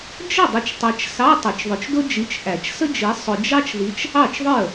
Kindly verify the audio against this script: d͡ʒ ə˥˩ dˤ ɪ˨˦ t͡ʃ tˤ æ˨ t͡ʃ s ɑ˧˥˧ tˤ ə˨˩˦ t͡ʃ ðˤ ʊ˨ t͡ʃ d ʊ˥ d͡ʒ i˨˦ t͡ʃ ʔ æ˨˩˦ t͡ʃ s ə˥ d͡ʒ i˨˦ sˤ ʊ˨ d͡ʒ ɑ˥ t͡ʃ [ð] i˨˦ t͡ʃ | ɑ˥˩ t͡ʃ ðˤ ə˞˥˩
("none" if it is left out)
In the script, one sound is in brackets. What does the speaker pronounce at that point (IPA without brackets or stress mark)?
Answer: ð